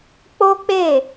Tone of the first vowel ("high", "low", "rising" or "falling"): high